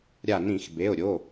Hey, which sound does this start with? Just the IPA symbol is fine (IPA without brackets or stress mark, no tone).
ɾʲ